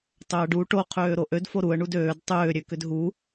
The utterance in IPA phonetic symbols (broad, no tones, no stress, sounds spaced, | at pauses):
tˤ ø ə̯ ɖ u ʈ o qʰ øː ɾ o ʔ ø d f o ɾ u ə̯ ɳ u d øː d tˤ ʏː ɾʲ ø k ʏ d ɦ u